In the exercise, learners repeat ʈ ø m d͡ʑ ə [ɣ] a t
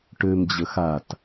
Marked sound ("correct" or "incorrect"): incorrect